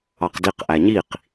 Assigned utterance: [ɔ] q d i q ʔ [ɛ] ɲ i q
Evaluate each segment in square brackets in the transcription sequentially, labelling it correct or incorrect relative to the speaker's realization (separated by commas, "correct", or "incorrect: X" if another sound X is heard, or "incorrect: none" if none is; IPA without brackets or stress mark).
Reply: incorrect: ɑ, incorrect: æ